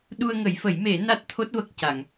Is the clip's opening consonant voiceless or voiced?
voiced